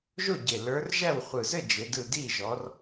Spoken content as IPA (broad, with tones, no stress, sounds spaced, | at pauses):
ʒ o˥˨ ɟ e˨˩ l ə˞˨˦ r ʒ æ˥˨ w χʷ ɯ˨˩ z ɘ˥˨ d͡ʒ e˨˦ d ɯ˥˨ d i˥˨ ʒ ɔ˨˦ r